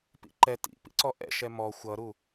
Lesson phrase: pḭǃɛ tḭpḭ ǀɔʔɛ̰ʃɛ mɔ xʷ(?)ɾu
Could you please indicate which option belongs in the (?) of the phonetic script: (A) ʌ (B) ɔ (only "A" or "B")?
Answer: A